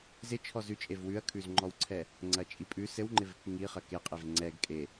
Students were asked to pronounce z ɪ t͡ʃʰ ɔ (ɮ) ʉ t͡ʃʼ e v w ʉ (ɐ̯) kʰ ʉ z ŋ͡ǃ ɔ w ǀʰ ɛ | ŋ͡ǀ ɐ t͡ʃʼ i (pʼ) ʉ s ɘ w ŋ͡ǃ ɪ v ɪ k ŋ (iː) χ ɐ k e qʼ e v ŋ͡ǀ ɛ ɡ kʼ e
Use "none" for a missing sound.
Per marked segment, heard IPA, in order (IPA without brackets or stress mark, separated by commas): z, ɐ̯, pʼ, i